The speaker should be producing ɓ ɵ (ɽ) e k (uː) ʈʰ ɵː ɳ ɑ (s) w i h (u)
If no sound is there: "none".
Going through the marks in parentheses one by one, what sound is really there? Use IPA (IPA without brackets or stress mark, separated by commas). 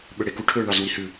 ɽ, u, z, ʉ